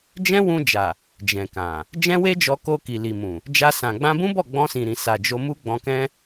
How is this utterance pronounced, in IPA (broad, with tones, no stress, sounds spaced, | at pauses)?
d͡ʒ ɛ̃˦ w ũ˧ d͡ʒ a˨ | d͡ʒ ɛ̃˨ k ã˨ | d͡ʒ ɛ̃˦ w e˦ d͡ʒ ɔ˧ k o˧ k i˨ l i˨ m ũ˨ | d͡ʒ a˧ s ã˨ ɡ͡b ã˧ b ũ˦ b ɔ˦˨ ɡ͡b ɔ̃˧ s ĩ˨ ɾ ĩ˨ s a˨ d͡ʒ o˧ m u˦ ɡ͡b ɔ̃˧ k ɛ̃˦